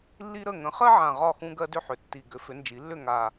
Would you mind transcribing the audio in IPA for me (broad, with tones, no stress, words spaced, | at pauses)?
lːi˦ɾə˥˩ ŋə̃˩˥χɜ˦ʕã˨˩ ʁɒ˥˩xũ˦ ɡɜ˦dʏ˥˩ħʏ˨˩ tːi˨˩ ɡʏ˩˥fʏ˩˥nd͡ʒi˩˥lːʏ˥˩ ŋa˨˩